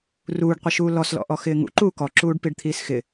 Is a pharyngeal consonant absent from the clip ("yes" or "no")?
yes